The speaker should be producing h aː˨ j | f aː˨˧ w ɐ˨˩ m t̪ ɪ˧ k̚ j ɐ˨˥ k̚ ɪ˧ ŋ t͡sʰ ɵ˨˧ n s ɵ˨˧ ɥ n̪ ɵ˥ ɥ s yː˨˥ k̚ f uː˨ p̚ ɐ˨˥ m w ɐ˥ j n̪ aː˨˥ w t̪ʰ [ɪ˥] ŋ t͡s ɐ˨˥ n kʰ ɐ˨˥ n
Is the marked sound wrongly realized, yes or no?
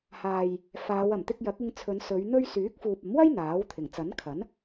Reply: yes